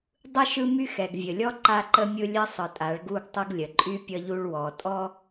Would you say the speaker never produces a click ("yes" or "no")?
no